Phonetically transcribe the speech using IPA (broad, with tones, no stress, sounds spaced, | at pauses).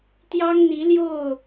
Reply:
t̪ j ɑ˦ ŋ n̪ i˨˦ l j o˥˨ ʊ̯